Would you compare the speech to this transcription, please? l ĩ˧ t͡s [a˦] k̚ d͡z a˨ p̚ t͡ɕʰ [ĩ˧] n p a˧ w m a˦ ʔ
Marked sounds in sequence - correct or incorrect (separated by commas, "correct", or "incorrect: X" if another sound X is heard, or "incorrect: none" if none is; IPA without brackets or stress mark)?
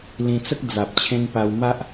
incorrect: ə˦, incorrect: ẽ˧